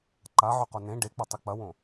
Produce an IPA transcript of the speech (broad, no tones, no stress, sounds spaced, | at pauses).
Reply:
ǃ a ʕ ɵ q o n ẽ ɖ e k͡p ɐ tˤ ɨ k͡p ɐ w õ